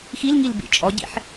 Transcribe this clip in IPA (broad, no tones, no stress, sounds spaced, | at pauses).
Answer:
x i l ŋ i l b ḭ t͡ʃʼ ɔ ɟ ḭ ħ